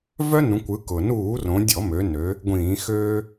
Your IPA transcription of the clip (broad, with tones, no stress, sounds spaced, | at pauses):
v œ˦ n ũ˩˧ kʷ ɯ˩˧ k ʊ˩ n uː˧˩˧ r õ˩˧ dʲ ɔ˧˩˧ m ø˩˧ n ø˩˧ | ɡʷ ĩː˧˩˧ x øː˦